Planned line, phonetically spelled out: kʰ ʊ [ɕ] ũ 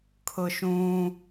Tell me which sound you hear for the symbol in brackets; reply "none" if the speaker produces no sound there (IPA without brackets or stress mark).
ʃ